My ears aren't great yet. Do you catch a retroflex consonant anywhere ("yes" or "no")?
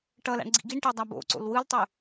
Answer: yes